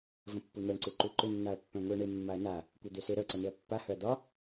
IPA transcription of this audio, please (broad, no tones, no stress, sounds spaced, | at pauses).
v ə̃ pː u n̪ a ɳ ǀ u ǃ u ǃ ʏ nː a ɐ̯ pː œ̃ ŋʷ e ɐ̯ ɳ e mː a ɐ̯ n a | kʷ œ d̪ e s e ɾ œ ǀ ə n e ɐ̯ pː a h œ ɐ̯ d̪ ɒ